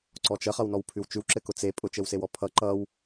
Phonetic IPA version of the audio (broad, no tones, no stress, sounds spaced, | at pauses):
ǀ ɔ t͡ʃ ə χ ʌ w n ɔ w pʰ ʉ w t͡ʃ ʉ w ǁ ɘ k ʊ t͡s e pʼ ʊ t͡ʃ ɘ w s e w ɔ pʰ ʌ ǃ ʌ w